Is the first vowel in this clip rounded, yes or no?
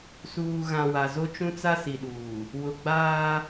yes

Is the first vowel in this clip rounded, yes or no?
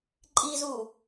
no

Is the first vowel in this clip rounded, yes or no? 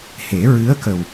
no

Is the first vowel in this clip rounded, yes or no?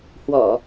yes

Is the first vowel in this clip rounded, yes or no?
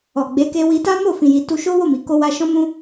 yes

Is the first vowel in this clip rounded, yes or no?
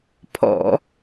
yes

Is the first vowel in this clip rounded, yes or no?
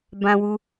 no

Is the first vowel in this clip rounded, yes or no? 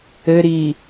no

